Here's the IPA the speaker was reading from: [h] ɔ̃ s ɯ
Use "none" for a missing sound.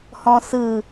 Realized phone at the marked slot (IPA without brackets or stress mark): h